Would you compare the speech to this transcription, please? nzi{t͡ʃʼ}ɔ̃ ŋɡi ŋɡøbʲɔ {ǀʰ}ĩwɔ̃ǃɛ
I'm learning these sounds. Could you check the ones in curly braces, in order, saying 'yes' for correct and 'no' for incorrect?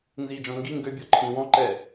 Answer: no, no

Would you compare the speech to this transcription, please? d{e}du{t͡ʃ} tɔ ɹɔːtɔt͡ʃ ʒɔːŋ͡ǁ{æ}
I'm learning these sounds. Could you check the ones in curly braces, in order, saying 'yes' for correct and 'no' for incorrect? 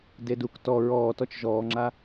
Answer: yes, no, no

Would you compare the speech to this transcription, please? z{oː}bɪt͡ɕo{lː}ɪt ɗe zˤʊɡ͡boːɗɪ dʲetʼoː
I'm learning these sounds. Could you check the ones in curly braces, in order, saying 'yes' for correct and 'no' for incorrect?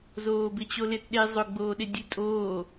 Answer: yes, no

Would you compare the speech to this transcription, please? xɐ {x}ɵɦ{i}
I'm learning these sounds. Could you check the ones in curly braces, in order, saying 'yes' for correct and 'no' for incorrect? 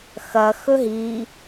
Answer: yes, yes

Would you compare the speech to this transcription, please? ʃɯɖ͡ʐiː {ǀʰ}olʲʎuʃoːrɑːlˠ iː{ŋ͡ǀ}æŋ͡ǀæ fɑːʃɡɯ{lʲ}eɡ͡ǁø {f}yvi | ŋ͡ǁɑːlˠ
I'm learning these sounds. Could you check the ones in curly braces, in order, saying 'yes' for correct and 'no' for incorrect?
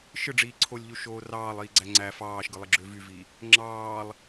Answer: yes, no, no, no

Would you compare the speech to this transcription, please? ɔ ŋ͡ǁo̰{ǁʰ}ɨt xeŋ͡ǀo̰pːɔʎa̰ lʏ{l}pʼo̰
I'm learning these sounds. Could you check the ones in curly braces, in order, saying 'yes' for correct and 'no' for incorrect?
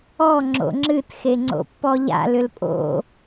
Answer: no, yes

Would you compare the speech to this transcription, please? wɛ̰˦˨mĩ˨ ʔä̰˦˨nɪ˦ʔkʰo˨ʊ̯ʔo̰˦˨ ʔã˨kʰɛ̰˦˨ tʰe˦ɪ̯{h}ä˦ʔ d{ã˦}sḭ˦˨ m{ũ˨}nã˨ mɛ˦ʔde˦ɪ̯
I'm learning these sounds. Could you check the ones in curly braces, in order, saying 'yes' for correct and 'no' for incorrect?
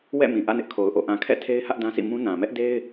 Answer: yes, yes, no

